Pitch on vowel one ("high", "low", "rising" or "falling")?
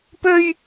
high